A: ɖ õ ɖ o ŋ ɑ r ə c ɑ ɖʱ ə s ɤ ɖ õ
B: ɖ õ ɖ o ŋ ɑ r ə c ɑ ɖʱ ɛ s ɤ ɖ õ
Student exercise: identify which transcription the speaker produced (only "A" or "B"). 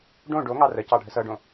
A